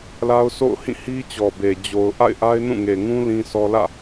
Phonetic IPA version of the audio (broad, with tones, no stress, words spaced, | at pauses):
la˦ʊ̯so̰˦˨ʊ̯hĩ˦˨ hi˦t͡ɕɔ˨be˨ d͡ʑo˨ʊ̯ʔa̰˦˨ɪ̯ ʔa˦ɪ̯nũ˦˨ŋe˨ŋũ˦ lĩ˦sʰɔ˦ lä̰˦˨